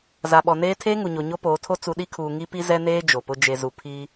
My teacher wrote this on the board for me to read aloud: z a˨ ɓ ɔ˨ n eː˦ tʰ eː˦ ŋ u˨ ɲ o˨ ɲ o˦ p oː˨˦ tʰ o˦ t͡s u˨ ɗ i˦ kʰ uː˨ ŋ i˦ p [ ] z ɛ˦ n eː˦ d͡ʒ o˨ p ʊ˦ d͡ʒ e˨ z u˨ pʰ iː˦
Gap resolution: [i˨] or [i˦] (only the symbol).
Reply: i˦